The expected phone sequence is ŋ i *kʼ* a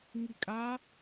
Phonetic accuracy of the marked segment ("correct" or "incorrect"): correct